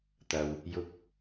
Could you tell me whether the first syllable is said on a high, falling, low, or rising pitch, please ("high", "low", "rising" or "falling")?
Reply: low